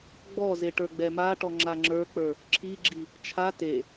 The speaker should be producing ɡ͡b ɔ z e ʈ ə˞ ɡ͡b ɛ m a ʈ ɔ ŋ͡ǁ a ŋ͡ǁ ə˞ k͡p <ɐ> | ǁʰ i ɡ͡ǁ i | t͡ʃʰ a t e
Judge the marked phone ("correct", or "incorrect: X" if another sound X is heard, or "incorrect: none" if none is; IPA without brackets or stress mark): incorrect: ə˞